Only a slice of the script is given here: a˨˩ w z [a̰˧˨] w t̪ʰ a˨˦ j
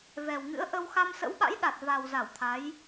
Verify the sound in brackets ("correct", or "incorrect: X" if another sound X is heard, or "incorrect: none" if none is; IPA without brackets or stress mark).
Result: incorrect: a˧˩